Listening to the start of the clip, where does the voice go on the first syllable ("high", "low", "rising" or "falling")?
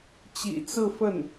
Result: low